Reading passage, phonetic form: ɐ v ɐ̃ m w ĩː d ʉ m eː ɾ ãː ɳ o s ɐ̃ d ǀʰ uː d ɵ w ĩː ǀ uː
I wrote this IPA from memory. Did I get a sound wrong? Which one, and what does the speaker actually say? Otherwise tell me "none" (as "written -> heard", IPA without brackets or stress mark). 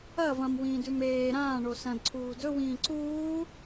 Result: none